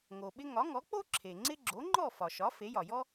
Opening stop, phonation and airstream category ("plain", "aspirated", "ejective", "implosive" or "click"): implosive